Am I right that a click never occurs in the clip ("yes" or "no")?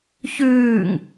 yes